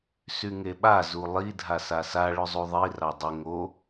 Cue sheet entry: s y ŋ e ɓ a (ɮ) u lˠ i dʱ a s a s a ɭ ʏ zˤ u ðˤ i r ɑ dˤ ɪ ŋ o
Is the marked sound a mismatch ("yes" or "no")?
yes